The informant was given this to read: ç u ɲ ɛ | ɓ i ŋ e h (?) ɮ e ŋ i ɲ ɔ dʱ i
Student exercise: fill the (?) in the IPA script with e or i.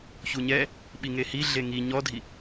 i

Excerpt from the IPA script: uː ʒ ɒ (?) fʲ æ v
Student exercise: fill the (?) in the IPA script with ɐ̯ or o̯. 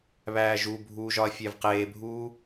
ɐ̯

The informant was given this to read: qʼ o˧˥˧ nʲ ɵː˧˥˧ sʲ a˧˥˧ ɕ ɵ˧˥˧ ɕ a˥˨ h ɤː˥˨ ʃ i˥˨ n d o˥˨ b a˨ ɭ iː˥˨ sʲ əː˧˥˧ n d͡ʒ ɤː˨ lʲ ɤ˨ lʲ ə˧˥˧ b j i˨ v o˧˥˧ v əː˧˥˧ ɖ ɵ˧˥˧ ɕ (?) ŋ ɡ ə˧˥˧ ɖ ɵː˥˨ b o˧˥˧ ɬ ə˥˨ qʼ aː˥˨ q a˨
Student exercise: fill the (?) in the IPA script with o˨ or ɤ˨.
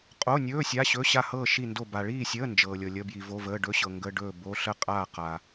ɤ˨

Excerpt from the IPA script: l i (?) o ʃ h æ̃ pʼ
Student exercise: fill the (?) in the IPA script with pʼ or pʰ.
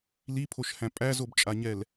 pʰ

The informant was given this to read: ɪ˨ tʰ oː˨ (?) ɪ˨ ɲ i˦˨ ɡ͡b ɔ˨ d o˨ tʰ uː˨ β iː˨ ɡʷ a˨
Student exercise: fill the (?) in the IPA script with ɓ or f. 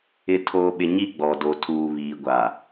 ɓ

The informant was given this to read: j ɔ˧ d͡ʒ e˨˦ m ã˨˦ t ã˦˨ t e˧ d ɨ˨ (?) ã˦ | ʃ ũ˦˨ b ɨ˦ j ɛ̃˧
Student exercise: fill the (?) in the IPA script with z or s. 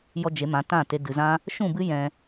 z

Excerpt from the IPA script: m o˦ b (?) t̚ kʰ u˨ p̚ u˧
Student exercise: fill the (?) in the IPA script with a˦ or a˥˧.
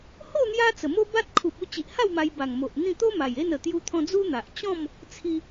a˦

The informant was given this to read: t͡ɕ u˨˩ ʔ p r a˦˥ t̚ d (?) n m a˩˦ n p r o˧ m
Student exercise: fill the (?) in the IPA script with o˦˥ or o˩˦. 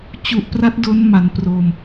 o˦˥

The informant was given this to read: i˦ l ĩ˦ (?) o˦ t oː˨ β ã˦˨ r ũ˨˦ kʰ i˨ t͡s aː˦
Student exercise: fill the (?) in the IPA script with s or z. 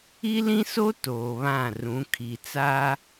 s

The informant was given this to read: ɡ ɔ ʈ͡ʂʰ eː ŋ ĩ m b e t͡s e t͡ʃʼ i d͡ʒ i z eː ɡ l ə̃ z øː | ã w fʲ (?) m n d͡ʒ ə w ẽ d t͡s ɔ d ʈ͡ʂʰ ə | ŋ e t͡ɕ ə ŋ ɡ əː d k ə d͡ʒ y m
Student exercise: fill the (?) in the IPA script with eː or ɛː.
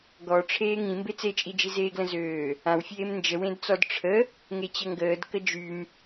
eː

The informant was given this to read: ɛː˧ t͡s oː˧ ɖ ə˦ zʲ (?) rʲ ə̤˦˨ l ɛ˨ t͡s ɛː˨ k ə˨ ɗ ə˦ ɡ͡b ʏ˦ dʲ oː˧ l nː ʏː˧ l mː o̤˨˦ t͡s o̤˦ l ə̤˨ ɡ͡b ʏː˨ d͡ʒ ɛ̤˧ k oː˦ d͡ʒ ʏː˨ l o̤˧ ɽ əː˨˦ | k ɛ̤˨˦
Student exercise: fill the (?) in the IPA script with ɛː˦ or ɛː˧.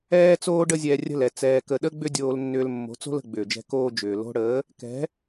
ɛː˧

